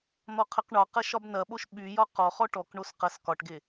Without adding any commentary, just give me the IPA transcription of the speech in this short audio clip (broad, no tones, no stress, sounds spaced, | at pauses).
n̪ ɔ qʰ ɐ q ɳ ɒ q ɐ ʃ ɒ b n ɐ ɓ o ʃ ɓ y j ɒ q ɔ χ ɔ ʈ ɔ k ɳ o s q ɐ s k ɒ ʈ ɡ e